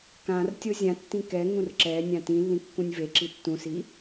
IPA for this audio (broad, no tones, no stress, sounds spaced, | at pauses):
k ã r tʲ o zʲ ã tː ĩ k ɛ ŋ ũ r ǁ ɛ nʲ ã t ĩ lː ĩ kː ũ nʲ v e ǁ i tː ũ s i